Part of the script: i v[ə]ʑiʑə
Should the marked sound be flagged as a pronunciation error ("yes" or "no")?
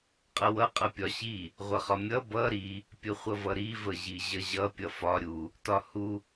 no